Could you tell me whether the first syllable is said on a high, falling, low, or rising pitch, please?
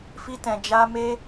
high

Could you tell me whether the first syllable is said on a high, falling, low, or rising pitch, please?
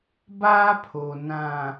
high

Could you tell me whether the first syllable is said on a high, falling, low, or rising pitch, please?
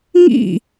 falling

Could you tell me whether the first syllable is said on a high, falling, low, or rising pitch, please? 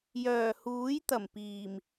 low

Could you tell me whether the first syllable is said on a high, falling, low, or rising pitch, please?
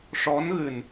rising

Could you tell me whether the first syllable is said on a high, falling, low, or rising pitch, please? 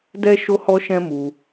high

